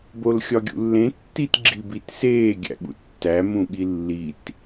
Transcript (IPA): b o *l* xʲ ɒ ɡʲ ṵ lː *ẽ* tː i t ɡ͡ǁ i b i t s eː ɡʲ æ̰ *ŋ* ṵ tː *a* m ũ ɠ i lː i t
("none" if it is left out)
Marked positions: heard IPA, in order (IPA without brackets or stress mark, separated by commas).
l, ẽ, ɠ, æ